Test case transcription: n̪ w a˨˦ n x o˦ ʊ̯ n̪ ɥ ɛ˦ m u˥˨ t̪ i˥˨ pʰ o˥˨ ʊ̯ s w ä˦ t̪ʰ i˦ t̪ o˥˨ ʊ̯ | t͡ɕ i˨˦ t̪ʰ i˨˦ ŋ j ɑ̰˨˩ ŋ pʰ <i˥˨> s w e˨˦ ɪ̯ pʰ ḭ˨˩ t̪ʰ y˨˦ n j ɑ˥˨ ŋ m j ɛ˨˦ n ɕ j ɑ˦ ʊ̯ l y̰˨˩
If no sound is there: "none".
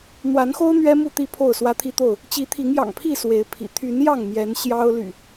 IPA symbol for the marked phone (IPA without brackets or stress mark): i˥˨